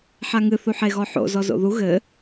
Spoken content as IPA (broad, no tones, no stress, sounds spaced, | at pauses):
ħ a ŋ ɨ θ u ħ e ɣ ɔ ħ o̰ z ɔ z o̰ ð u ɣ ɘ